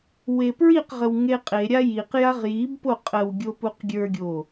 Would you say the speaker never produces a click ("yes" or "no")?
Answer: yes